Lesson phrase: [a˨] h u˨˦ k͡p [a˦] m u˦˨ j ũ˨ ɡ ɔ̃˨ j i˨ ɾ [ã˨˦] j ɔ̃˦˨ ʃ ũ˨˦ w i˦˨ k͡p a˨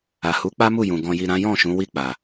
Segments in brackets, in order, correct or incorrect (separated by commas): correct, correct, correct